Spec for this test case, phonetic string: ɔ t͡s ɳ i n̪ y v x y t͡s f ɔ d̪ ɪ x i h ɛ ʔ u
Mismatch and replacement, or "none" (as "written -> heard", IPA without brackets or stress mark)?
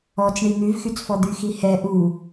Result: ɪ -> y